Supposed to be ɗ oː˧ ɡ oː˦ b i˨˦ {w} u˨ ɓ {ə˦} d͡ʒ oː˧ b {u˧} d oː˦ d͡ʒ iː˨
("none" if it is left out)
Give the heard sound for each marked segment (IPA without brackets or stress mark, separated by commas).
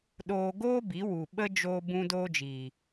w, ə˧, ũ˧